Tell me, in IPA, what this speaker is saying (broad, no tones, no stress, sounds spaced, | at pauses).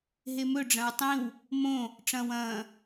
ɦ e m ɵ ɖ͡ʐ ɐ̃ w tˤ ĩ w | m õ | ʈ͡ʂ ɐ̃ː w ɐ̃ː